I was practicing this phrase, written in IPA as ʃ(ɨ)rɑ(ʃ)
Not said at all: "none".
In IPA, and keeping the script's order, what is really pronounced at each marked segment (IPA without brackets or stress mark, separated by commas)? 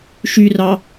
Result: y, none